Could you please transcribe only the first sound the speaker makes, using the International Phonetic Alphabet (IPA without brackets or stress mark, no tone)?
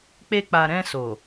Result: k͡p